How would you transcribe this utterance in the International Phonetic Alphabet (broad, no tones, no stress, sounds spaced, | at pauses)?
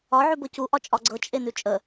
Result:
ɒ ʕ ʉ b ɤ c u ʔ ɒ t͡ʃʼ ɒ ɡ͡ǀ ɤ t͡ʃʼ e n ʉ t͡ʃʼ ə